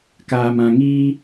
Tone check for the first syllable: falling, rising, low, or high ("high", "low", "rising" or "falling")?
low